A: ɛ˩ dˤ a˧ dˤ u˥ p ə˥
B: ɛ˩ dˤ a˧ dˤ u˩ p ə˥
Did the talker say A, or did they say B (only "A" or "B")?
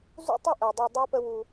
A